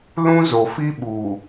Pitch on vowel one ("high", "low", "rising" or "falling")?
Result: high